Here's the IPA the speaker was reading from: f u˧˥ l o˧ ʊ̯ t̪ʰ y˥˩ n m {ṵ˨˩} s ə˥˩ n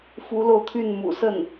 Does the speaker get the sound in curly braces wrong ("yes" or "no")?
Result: no